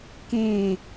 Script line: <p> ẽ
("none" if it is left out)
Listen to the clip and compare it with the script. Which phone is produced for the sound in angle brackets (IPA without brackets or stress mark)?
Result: k